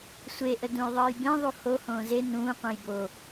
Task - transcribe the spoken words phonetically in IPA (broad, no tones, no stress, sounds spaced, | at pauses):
sʷ e ʔ ə d ũ j ðˤ əː j b ẽ ðˤ u h o h õː z e n ũː qʷ ə̃ː j b o